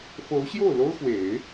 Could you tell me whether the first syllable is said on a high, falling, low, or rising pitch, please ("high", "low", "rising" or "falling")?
rising